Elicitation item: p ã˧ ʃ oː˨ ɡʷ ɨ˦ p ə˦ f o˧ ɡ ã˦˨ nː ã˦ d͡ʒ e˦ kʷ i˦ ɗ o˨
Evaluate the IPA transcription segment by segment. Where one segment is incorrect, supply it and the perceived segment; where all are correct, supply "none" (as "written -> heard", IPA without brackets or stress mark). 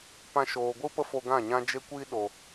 nː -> ɲ